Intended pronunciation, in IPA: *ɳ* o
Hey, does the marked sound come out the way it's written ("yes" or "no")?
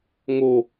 no